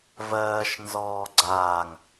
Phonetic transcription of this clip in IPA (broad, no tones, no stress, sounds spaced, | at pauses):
v ɜː ʃ n z ɔː ɡ͡ǀ aː ŋ